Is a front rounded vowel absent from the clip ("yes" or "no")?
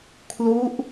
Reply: yes